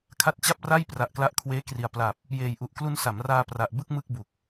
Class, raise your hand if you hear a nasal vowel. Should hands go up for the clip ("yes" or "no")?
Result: no